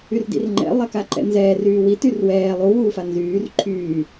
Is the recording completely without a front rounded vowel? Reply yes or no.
no